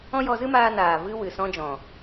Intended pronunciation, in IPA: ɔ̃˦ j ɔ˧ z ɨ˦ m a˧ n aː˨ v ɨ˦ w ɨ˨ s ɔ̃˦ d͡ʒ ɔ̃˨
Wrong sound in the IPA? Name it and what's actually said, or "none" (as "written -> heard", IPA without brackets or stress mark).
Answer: a˧ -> aː˧